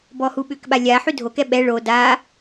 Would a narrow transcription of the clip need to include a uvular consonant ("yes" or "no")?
no